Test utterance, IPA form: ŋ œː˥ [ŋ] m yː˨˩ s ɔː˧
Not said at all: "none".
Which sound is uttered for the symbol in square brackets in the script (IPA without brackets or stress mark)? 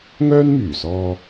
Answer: n